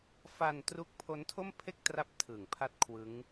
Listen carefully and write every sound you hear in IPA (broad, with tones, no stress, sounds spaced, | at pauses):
f a˧ n t r u˦˥ k̚ pʰ o˦˥ n tʰ o˥˩ m pʰ e˥˩ k̚ t r a˦˥ p̚ tʰ ɯ˨˩ ŋ pʰ a˥˩ t̚ kʰ w ɯ˦˥ ŋ